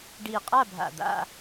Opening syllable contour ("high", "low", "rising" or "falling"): low